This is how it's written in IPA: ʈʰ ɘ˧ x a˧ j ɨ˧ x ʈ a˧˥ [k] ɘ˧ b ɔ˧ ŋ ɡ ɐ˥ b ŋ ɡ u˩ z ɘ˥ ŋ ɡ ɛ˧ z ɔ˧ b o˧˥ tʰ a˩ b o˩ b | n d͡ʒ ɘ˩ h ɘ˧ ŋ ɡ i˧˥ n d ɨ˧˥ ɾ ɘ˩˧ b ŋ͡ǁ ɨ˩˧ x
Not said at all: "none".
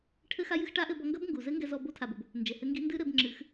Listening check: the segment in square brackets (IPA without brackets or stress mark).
ʔ